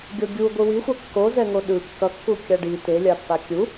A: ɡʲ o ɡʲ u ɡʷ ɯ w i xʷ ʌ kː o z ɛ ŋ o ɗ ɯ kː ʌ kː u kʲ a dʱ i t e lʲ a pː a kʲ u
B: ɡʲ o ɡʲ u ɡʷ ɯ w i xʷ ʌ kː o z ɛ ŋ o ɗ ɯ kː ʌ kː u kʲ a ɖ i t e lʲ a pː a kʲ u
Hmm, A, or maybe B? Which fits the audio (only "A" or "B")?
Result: B